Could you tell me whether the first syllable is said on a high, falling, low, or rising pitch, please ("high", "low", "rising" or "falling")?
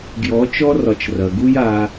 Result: rising